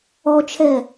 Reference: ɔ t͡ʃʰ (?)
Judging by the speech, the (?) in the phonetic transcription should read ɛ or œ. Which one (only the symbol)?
ɛ